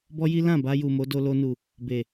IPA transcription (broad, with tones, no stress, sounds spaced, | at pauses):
b ɔ˦ j i˦ l ã˦˨ b a˧ j u˨ m o˨˦ d o˧ l o˧ n u˨ | b e˨